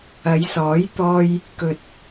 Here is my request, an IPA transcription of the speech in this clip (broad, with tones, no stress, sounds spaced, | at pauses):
ɐ˨˧ j s ɔː˨˥ j t̪ ɔː˧ j | k ɵ˨ t̚